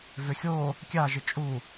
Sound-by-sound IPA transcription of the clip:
vʏxʲo | kʲaʒɪ t͡ʃʼu

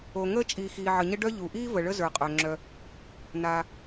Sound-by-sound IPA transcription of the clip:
o˩ ŋəː˥ t͡ʃʼiː˩xiː˩ʕə˩ɲə˥ ɖœ˥ ʎu˩ʔiː˥ və˩ɭə˥ zə˞˩qʼœ˩ ŋ͡ǁœ˩ | naː˩

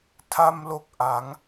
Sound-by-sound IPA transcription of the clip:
tʰa˧mlo˨˩k̚ʔa˩˦ŋ

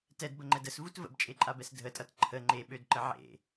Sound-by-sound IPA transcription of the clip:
tɛdbəŋ͡ǃɛd əsvut və̰bt͡ʃʼeǃʼabɛs dʱətʼʌt ǃʰə ŋ͡ǃeɓødǃə ʕḛ

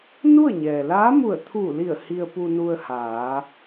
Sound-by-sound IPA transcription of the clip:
nu˥˨ə̯ɲɛː˩ laː˧˥mu˧˩ə̯t̪ʰuː˧˩li˧˩ə̯ hi˧ə̯pu˧nu˧ə̯ haː˩˧

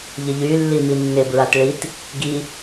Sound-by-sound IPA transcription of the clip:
ʎɪʎy lːiminːɪ bɹatɭit | ɡi

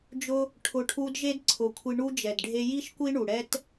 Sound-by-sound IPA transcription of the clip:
d͡ʒʊ˦ | ʈʰʊ˧ʈʰu˦d ʒe˦dǀʰʊ˨˦kʷʰi˧ ɳu˧ d͡ʒɛ˨dɖʱe˧ ji˦ʃkʷi˦ɳu˨ ɽɛ˦t

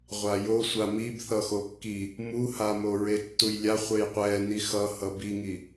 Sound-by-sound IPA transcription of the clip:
ʁʷajosʷa mib θʌxokːi | muha moɹetːujlʲa χʷejqʷɛ nixʌ hʌbiŋi

